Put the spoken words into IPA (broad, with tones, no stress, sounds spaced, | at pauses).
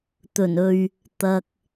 t̪ ɵ˨˩ n ɵ˨ ɥ | t̪ ɐ˨ k̚